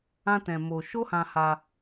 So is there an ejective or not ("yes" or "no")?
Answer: no